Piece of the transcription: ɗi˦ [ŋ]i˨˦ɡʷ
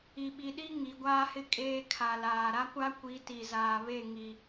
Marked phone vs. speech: correct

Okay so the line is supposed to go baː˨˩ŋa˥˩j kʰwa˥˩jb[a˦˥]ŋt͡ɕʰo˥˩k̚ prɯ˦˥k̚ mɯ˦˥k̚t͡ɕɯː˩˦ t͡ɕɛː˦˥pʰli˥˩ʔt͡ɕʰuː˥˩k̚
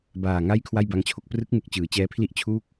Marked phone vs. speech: correct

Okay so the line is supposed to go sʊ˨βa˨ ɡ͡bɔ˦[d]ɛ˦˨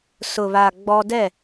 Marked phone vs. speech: correct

